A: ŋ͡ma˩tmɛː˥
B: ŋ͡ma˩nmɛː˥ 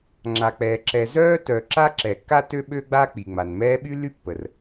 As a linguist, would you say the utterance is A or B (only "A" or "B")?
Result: B